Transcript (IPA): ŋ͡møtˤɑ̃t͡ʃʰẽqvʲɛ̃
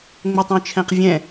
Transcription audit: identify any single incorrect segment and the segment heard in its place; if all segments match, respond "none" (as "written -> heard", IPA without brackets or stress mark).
ẽ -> ɛ̃